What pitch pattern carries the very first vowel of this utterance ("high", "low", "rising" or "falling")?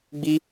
high